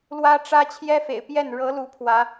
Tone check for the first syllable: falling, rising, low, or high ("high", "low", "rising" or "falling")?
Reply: high